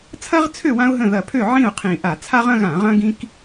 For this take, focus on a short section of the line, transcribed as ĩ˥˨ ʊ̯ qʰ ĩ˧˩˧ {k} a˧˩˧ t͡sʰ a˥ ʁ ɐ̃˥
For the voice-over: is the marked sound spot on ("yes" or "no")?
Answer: no